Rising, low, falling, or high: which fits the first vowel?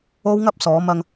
high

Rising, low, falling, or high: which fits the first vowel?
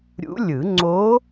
rising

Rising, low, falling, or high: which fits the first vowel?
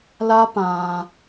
high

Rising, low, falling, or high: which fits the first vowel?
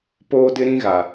high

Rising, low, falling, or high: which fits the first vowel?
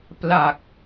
low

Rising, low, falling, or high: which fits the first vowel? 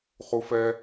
high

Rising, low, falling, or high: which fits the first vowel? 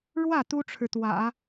falling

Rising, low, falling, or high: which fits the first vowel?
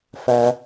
low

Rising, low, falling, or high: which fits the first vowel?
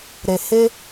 low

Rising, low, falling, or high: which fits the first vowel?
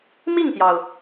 falling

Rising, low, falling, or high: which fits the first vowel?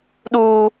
high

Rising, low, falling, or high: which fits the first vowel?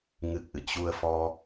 low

